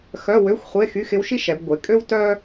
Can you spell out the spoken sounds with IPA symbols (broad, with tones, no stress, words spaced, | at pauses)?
xœ˧˥˧wø˧˥˧xʷχʷe˧˥˧ xy˧˥˧xɪ˧˥wʃi˥ʃ ɛ˩˧bɡʷe˩˧kʼø˥w tœ˥